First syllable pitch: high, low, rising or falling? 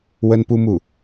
high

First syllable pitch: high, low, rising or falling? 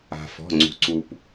low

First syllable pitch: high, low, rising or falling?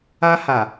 high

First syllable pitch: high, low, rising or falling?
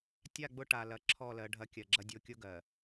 falling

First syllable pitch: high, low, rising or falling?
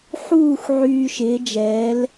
falling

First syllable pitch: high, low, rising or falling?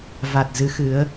low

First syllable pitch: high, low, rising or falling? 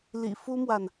low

